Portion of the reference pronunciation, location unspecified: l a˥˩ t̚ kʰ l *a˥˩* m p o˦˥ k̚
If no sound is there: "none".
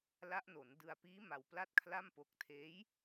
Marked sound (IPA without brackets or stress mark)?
a˥˩